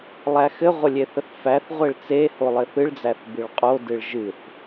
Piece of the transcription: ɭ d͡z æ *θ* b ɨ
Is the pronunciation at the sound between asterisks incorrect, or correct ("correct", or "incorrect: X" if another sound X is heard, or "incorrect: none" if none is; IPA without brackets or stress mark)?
correct